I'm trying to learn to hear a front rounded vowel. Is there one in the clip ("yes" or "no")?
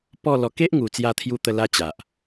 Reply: no